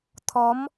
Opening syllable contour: rising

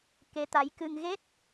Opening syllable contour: rising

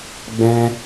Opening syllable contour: high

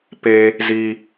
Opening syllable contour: high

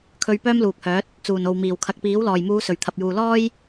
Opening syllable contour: high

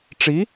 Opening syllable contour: rising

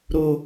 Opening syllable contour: low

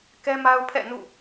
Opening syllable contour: high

